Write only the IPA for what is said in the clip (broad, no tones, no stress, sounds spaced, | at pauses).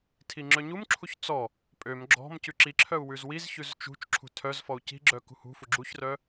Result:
tʰ i ŋ͡ǁ œ ɲ u m ǁʰ u ç t͡s ɔ | pʼ ø m ɡ͡ǁ ɔ̤ m c ʉ ǁ i ǁʰ œ u̯ w ʉ z w i z ç ʉ z t͡ʃ ṳ t͡ʃ ǁʰ ṳ tʰ œ z f ɔ u̯ c i̤ ɡ͡ǁ œ k ṳ h ṳ f u ɡ͡ǁ u ç r œ